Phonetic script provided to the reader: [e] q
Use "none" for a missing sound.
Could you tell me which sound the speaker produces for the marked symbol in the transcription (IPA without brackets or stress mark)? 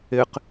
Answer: e